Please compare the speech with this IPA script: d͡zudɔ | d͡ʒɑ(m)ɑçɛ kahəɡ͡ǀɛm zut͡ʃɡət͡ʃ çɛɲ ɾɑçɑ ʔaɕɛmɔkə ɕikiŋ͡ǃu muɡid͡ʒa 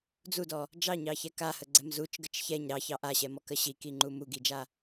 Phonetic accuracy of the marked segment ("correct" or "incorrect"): incorrect